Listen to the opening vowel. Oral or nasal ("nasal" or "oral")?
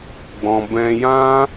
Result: nasal